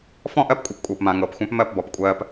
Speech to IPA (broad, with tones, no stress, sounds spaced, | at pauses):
f ɔ̃˦˨ ʔ ɜ˦ p kʷʼ ɛ˨ p kʷʼ ɤː˨ p m ã˨ ŋ ɤː˨ p xʷ ã˦ p m ɜ˦˨ p b ɔ˨ p kʷʼ ɜː˦ p